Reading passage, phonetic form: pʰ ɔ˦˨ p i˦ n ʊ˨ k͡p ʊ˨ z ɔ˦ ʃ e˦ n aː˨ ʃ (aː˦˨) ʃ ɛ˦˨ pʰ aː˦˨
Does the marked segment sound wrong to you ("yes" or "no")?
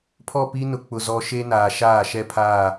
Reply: no